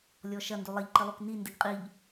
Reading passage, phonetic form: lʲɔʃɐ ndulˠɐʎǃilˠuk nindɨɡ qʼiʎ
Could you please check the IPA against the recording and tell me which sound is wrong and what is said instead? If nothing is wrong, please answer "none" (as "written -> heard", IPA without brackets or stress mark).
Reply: none